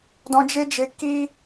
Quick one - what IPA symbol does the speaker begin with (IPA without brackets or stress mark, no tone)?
d